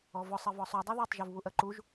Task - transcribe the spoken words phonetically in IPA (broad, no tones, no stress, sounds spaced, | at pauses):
ɔ v ɔ sˤ ɜ v ɔ sˤ u dˤ ɜ ð ɜ tˤ ʒ u v β u ʔ ɜ ǃ u ʒ